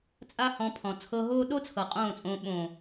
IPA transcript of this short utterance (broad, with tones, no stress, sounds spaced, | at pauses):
t͡sʼ a˧ h ɔ̃˨˦ pʰ ɔ̃˨ t͡sʰ ɤ˧ ɦ oː˦ ɗ o˦ t͡sʰ ɤ˨ qʼ õː˦˨ t͡sʼ õː˧ ɓ õː˨